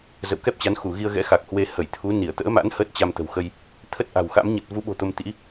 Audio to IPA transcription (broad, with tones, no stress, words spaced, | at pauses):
zə̰˧˨wkɛ˦˥p̚t͡ɕa˨˦n xu˧˩ɣi˧ə̯ɣɛ̰˧˥ xa˨˩k̚hwe˧ hə˧˩jt̪ʰu˨˦ ni˧˩ə̯t̪ə̰ː˧˥ma̰˧˥n həː˦˥t̚t͡ɕa˧m t̪ə̤˨˩wxə˧j | t̪ʰə˦˥t̚ʔa̤˨˩wxa̰˧˥m ɲə˨˩t̚vu˨˦ɓo̤˨˩ t̪o˧mt̪ḭ˧˥